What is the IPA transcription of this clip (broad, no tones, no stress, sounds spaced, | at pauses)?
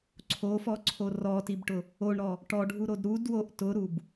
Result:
ǀʰ o f ɔ ǀʰ o r ɔ t i b ʈ ʊ | o ɳ ɾ ɔ | ʈ ɔ ɖʱ u ɾ o d ɾ u d w o ʔ t ʊ ɾ u b